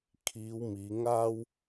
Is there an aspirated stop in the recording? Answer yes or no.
yes